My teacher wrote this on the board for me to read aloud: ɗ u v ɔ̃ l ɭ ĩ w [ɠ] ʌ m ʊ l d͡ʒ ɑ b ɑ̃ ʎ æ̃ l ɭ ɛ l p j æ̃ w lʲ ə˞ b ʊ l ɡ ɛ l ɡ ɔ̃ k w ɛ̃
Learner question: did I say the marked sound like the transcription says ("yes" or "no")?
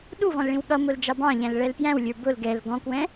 yes